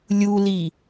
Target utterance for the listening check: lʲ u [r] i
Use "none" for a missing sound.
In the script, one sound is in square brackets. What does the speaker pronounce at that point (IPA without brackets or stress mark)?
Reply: l